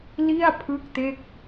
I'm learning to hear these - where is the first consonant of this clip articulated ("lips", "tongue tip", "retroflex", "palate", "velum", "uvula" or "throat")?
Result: tongue tip